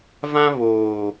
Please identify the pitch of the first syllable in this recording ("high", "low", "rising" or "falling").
high